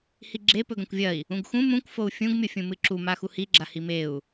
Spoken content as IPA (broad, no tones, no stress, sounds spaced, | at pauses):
h i ɡ͡ǁ e p ɵ ɡ ɐ̃ kʷ vʲ ɐ i̯ | ũ ɡ x ũ m ũ kʷ f o u̯ fʲ ũ ɡ mʲ o fʲ ũ m ɨ ǁ u m a x u h i ɡ͡ǁ a h i m e u̯